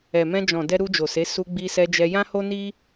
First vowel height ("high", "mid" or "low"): mid